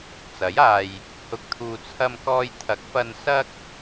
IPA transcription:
t͡sɐ˨˥jaː˧j | hʊ˨˥k̚ t̪ʰuː˨t͡sʰɐ˧mkɔː˧j t̪ʰɐ˨˥k̚fɐ˧n sɐ˥k̚

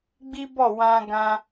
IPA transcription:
ɡ͡bi˦bɔ˦˨wã˧ ɡã˦

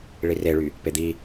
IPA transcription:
ɭireɭy | ped̪i

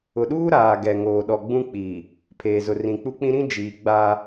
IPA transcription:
ʊ˨ɗuː˦ ɾaː˨ɡɛ˨ ŋoː˨ɗɔ˨ɡ͡bũ˦ k͡pi˨ | pʰeː˨ zʊ˨rĩ˨k͡pu˦k͡pĩ˦ ɾĩ˦d͡ʒiː˨ ɡ͡ba˦

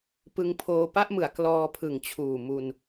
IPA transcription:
pɯ˧ŋpʰoː˧ pa˥˩ʔmɯ˩˦a̯ klɔː˧pʰɯ˨˩ŋt͡ɕʰuː˨˩ mu˧n

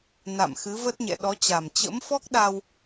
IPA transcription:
na̰˧˨mxɨ˨˦və˦˥t̚ɲɛ̰˧˨ ɗɔ˨˦t͡ɕa˨˩m t͡ɕə̰˧˥mfɔ˦˥k̚ɗa˧w

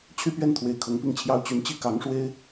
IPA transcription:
t͡ɕʰy˥pɥɛ˥˩nt̪ʰwe˨˩ɪ̯ kʰɤ˧˥ŋpi˥˩ŋt͡ɕʰjɑ˥ʊ̯ t͡ɕy˧˥nt͡ɕi˥ kɑ˧˥ŋʂwe˥ɪ̯

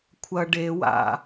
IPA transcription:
kʷʰɐ ɖewa̰

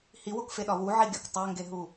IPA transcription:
hiwokfeɗɒ wuʕiɡʲɒk tˤæŋɡeɦu

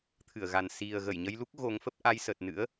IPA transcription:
t̪ʰɨ˧˩ə̯ɣa˨˩n si˨˩ə̯ ɣə˧˩jɲə˧jlu˦˥k̚ ɣo˨˦ŋfə˦˥p̚ ʔa˧jsə˨˩t̚nɨ̰˧˥ə̯

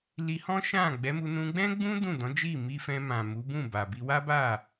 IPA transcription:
li˧hɔ̃˦ʃã˦˨ ɡ͡bɛ˨˦mu˧ nũ˧ɡ͡bɛ̃˦ɡ͡bũ˦ dũ˦˨dɔ̃˨˦d͡ʒi˦˨ mi˧fɛ̃˧mã˨ mu˨˦bũ˦˨ba˨ bi˧wa˦ba˦˨

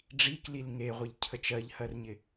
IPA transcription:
ɖ͡ʐiklil ŋeʁʷeʎcʰə t͡ʃɜʎhɜrɲɪ

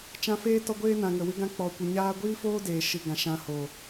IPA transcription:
t͡ʃã˧feː˦ tɔ˧ ɡʷeː˦nã˨ ŋə˨wɨ˦ɡã˦ k͡pɔ˨ kʷə˨ɲaː˧ɡʷiː˦foː˦ deː˧ʃɨ˧ɡã˧ʃã˦ hoː˨

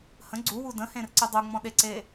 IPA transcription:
hə̃ ɡ͡ǀuwu də̃hẽrǀɨ dˤuŋ͡mɔ̃ɗeǀe

